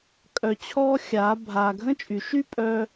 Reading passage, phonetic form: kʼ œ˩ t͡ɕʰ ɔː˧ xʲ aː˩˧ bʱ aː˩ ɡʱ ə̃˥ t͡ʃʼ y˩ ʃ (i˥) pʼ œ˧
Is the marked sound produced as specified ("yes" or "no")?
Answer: no